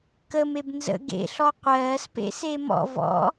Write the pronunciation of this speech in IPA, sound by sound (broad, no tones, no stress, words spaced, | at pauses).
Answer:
kəmeb nzə̰ ɡḛɬɔ qʷɜːspḛse mɔ̰ vɔ̰